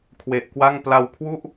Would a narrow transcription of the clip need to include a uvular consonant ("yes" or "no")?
no